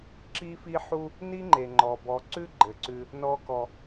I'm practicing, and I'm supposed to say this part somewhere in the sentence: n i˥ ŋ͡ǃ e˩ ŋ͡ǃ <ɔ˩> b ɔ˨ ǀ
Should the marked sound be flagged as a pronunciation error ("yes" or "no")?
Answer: no